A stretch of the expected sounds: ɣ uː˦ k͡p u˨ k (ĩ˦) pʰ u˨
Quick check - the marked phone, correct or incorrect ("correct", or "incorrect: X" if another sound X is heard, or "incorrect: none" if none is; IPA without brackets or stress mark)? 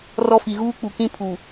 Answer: correct